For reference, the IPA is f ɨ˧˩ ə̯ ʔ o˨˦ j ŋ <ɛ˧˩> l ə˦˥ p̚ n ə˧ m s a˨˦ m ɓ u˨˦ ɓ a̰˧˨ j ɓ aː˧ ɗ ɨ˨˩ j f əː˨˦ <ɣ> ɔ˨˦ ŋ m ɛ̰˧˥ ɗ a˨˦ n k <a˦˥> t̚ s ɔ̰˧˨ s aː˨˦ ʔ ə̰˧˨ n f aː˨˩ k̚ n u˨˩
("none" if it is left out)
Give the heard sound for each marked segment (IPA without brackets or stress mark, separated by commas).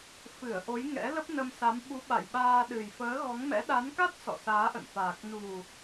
ɛ̰˧˥, ɣ, a˦˥